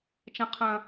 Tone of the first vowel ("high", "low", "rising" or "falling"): high